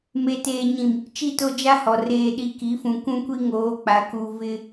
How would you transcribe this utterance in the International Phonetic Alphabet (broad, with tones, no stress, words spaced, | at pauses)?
me˨teː˨ɲĩ˨m | t͡ʃi˦˨to˦d͡ʒa˦hɔ˨ reː˨ɗi˨ki˨˦fũ˨ kʷũ˦kʷi˦ ŋoː˨˦k͡pa˨˦ ku˨ vɪ˦